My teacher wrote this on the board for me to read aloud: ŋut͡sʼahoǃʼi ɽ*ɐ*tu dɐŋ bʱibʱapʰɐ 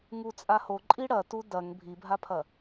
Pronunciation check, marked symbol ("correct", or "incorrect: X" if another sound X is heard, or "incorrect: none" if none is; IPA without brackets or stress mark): correct